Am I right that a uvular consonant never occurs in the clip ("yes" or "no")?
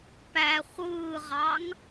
no